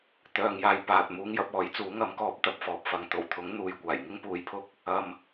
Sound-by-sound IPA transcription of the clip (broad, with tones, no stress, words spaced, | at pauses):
t̪œː˨ŋjaː˨j paː˨t̚ muː˧ŋjɐ˧p̚ɔː˨˥j t͡suː˨˥ŋɐ˨˥mkɔː˨˥p̚ t̪ɐ˨p̚fɔː˨p̚fɐ˨˧ŋ t̪o˨˩wt̪ʰʊ˨˥ŋ n̪uː˨jkʷaː˨˩j ŋɪ˥ŋpuː˨˥jpʰʊ˧k̚ | ɐ˨m